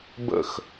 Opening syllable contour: falling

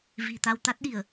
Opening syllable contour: low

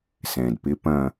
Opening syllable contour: low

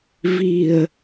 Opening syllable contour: low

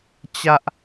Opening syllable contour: high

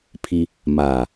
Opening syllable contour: high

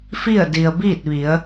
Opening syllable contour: falling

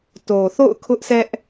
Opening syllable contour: low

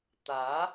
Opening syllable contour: rising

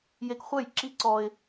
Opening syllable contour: low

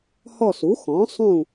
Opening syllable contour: falling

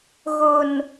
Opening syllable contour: low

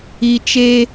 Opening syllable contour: low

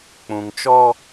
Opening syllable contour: low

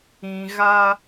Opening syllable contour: low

